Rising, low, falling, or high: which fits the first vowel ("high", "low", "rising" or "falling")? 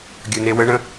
low